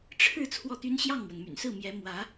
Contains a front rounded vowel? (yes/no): yes